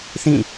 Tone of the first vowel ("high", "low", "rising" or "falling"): falling